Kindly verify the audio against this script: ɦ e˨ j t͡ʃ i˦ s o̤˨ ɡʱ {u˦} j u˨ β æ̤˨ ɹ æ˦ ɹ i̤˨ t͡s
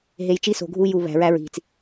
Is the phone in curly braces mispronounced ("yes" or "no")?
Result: no